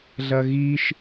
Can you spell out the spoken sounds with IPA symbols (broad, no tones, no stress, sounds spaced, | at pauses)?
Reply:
ɮ ɐ ɣ i ʃ